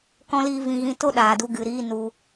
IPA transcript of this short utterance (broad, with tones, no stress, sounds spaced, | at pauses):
k ɔ̃˦ l iː˦ v ĩ˧ ɣ ĩ˧ t o˦ ɗ aː˨ d u˧ ɡ ɨ˨ ɾ iː˦ n u˧